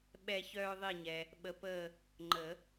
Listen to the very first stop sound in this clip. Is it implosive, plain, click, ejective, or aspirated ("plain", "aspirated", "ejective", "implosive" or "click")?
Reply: implosive